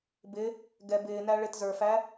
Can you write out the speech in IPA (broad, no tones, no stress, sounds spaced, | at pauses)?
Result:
b ɪ | ɡ ɛ b ɪː n æ ɭ ɪ t z ə˞ f æ